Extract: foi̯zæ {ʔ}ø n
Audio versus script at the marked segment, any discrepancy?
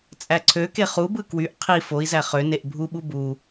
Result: yes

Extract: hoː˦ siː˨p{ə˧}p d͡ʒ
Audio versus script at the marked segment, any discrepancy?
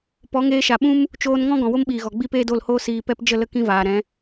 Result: yes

